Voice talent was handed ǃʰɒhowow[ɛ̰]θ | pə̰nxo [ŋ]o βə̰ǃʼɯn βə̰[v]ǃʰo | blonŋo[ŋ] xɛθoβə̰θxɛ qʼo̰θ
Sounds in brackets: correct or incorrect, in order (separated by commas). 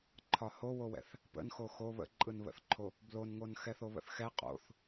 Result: correct, incorrect, incorrect, incorrect